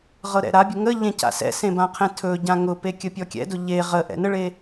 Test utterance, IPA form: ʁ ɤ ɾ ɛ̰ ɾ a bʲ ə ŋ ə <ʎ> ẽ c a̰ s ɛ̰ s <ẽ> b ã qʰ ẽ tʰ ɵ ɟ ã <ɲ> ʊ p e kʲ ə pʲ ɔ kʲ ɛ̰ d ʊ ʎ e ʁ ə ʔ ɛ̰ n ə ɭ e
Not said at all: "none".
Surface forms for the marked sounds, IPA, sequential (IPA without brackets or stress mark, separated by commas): ʎ, ẽ, ŋ